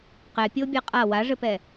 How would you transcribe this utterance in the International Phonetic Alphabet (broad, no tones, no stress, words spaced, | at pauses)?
qɛpʲobʲa qʼa waʐɘpɛ